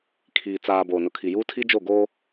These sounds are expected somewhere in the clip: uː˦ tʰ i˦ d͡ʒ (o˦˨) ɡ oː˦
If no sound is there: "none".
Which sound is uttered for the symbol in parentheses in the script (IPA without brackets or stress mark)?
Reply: o˦˨